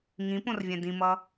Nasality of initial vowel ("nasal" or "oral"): nasal